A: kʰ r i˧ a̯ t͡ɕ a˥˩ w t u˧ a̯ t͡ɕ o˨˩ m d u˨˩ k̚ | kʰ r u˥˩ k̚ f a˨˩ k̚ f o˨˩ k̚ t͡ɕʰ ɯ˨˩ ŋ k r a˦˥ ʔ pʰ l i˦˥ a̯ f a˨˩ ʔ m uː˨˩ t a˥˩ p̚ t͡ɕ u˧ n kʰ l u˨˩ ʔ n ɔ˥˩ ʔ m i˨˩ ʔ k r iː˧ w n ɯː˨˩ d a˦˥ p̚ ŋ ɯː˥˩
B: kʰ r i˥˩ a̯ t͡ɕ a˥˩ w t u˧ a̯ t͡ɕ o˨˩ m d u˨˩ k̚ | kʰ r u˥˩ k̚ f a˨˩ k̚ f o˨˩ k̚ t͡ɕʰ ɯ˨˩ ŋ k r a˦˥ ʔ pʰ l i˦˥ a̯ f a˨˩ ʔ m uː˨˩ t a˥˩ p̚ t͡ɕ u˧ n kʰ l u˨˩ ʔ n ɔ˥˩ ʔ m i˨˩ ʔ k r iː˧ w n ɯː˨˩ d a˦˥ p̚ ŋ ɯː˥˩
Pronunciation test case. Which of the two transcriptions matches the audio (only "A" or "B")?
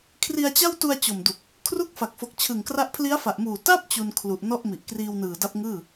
A